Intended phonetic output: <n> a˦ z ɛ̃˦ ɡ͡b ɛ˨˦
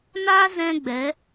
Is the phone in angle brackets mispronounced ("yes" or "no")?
no